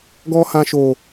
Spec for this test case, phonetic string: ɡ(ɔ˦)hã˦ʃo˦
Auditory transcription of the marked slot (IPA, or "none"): ɔ˦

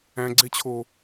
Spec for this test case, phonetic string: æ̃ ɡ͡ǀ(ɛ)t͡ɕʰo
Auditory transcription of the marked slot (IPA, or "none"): e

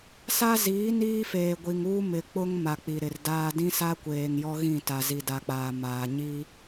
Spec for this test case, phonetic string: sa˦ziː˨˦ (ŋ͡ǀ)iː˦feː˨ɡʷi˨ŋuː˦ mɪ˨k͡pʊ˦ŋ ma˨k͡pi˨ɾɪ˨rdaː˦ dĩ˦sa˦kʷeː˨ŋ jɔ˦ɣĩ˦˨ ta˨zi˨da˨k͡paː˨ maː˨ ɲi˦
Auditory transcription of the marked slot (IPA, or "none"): n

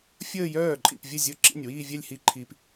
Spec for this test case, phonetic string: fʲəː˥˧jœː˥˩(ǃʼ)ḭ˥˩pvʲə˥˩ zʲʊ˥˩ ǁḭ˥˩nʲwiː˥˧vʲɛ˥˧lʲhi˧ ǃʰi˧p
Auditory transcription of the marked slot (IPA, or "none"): ǃʼ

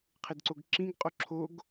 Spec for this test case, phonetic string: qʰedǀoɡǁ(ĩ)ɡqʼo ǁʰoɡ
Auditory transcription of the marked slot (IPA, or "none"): ĩ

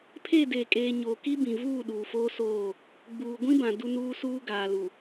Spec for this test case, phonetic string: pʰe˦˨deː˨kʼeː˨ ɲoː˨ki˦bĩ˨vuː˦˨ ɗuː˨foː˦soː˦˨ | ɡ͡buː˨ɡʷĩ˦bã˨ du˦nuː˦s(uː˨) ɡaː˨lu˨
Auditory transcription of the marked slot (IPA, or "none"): uː˦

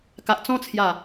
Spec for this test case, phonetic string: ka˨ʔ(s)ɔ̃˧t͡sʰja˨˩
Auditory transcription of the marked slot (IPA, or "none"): t͡s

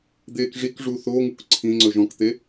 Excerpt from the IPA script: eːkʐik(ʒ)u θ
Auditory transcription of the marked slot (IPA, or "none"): ʐ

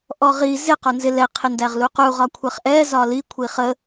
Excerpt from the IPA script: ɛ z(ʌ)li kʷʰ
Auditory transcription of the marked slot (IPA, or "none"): ɒ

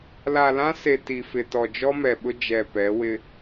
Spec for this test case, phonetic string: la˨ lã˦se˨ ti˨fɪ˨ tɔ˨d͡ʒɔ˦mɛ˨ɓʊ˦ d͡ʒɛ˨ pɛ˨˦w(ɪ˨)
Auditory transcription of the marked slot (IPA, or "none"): ɪ˦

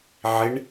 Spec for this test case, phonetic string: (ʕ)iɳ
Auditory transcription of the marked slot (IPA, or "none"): ʕ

